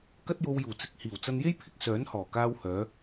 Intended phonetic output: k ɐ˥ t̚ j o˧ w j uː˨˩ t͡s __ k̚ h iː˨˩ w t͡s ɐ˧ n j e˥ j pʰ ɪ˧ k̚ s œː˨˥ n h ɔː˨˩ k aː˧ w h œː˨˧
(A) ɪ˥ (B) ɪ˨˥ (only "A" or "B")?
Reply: B